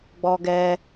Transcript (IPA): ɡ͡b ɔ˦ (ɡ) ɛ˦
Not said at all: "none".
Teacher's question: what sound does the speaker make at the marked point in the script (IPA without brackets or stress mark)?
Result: ɡ